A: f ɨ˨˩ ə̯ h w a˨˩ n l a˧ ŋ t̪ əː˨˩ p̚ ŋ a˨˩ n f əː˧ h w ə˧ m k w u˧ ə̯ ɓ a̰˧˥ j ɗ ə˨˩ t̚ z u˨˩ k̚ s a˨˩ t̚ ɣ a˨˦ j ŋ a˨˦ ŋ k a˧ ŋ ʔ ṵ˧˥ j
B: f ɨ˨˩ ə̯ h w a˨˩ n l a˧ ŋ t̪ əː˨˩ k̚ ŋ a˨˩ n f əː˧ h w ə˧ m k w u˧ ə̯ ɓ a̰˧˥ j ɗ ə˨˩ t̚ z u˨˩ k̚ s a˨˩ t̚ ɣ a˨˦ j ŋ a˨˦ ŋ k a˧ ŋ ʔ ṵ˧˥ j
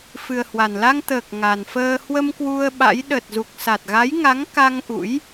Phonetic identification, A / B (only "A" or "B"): B